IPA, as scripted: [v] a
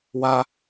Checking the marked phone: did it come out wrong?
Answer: yes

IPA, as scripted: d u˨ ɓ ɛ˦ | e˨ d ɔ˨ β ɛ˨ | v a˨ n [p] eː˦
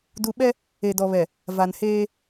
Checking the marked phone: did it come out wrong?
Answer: yes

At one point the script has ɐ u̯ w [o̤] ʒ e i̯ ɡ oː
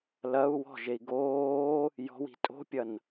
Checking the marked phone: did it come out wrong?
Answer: yes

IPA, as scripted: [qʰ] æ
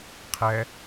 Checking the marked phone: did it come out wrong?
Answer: no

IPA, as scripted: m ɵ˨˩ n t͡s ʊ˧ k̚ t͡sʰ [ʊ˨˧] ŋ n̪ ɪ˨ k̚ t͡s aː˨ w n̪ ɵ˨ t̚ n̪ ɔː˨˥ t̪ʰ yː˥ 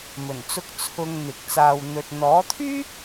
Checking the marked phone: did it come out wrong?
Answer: yes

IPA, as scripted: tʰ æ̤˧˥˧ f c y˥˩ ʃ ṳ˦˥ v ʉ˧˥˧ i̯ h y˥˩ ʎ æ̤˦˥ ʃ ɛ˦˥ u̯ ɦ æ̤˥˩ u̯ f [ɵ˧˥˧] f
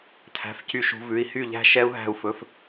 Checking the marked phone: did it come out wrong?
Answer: no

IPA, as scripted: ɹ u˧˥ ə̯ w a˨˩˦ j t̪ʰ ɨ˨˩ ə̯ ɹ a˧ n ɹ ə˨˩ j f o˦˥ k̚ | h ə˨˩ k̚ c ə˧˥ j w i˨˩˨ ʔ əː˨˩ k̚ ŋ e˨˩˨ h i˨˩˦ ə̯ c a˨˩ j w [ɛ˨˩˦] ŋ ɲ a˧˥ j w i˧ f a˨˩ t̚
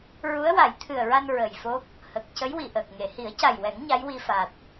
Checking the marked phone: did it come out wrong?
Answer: no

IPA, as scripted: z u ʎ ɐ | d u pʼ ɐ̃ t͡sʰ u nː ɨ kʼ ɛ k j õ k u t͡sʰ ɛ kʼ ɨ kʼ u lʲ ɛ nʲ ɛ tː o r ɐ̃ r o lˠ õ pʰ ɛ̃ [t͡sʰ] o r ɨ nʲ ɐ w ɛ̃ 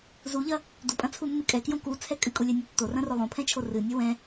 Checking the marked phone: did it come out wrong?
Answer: yes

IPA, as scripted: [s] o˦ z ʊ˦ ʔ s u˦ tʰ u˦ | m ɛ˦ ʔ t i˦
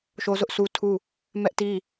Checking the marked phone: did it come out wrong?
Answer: yes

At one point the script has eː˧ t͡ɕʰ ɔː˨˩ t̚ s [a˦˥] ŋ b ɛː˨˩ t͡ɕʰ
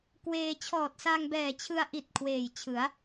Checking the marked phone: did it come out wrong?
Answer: yes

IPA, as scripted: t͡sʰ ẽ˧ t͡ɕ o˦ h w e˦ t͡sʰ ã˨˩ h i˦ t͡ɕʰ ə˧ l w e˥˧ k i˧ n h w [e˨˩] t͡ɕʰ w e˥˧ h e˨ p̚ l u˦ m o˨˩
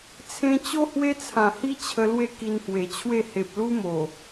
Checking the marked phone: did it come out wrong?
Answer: no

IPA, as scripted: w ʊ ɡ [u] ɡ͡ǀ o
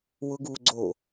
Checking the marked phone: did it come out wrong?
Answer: no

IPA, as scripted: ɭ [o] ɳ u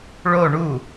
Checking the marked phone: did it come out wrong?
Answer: no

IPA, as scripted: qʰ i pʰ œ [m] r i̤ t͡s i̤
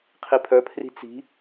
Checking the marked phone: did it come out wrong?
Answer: yes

